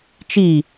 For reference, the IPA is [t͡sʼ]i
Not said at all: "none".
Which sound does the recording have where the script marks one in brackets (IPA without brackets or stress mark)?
t͡ʃ